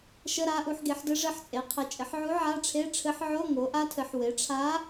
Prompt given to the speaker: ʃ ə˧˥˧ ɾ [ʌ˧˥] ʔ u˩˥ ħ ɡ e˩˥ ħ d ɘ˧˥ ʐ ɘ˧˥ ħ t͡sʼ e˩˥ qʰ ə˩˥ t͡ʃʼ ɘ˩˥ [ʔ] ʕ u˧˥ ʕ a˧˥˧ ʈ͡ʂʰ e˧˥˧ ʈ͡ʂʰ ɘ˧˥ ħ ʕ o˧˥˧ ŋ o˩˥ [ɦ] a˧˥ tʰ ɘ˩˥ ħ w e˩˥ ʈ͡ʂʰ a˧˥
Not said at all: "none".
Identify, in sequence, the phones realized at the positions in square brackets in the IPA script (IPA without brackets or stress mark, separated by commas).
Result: a˧˥, ħ, ʔ